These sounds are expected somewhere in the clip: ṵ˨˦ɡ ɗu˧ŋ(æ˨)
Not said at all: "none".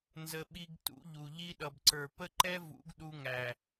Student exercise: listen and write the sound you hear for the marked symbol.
æ˨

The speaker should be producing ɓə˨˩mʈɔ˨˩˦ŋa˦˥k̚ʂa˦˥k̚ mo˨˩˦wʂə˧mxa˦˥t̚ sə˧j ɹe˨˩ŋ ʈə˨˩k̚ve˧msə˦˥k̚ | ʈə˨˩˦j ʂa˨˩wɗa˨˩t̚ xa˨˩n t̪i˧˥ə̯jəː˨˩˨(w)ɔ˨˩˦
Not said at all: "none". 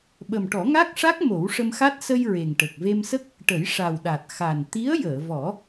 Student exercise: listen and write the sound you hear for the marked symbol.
v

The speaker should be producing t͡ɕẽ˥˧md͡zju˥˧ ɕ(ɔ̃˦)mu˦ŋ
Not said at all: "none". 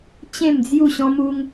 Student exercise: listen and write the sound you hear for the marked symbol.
ɔ̃˦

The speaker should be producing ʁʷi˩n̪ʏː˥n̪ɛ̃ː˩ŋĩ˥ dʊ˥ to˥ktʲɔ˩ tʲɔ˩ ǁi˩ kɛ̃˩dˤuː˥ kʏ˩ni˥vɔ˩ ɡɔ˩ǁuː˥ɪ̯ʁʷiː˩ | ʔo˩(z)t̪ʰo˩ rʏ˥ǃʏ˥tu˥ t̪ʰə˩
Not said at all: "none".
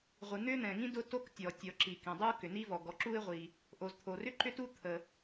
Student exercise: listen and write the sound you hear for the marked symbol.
z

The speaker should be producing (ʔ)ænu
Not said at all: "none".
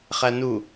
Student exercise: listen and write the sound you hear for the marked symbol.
χ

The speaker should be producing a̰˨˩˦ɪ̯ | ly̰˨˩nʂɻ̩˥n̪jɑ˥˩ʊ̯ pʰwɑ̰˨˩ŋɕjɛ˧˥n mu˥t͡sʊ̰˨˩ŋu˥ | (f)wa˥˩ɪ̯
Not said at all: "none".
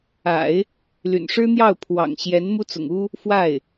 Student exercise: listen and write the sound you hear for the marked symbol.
f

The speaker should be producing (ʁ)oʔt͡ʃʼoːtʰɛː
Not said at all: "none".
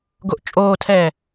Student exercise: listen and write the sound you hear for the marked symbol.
ɡ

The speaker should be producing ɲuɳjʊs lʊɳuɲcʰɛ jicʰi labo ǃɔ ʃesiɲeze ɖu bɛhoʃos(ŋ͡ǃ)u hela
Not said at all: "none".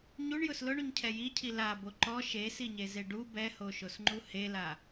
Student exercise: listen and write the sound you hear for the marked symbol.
ŋ͡ǃ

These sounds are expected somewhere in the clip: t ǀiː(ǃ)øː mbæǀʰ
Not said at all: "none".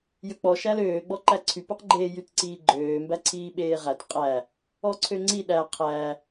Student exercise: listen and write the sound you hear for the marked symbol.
ɡ͡ǃ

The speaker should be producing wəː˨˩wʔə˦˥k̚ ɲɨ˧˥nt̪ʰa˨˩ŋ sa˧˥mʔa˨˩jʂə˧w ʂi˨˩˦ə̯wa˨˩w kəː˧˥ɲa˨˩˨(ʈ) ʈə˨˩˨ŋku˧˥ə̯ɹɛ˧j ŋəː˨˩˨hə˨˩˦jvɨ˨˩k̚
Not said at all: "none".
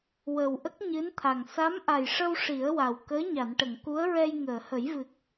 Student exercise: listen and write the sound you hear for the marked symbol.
n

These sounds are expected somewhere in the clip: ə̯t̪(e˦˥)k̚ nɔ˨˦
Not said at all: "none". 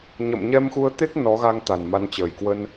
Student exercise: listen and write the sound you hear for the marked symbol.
e˦˥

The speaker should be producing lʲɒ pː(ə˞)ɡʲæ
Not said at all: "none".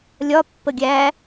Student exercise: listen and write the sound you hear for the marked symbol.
ə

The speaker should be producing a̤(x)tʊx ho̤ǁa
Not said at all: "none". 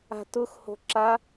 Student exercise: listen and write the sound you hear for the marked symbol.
none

